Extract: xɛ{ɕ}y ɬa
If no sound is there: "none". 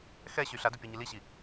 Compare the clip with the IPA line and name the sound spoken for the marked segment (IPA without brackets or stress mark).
ɕ